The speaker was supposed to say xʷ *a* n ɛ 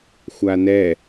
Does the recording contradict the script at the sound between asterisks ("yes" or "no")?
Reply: no